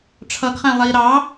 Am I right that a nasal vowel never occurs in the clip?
no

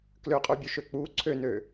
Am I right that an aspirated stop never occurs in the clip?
no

